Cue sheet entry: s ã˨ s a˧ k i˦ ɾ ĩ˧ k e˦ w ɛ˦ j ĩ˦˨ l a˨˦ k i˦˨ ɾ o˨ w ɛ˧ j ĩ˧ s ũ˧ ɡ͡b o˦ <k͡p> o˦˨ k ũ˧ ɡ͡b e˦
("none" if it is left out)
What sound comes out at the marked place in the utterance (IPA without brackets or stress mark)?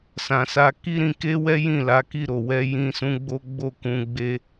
ɡ͡b